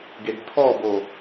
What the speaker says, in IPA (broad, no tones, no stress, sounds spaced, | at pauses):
ɡ e ɡ tʰ ɔ b o